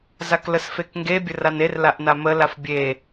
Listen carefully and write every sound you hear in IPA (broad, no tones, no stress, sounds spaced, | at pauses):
z a k l ə s f e k ŋ ɡ e bʲ ə r a n e r l a ʔ n a m ə l a f bʲ e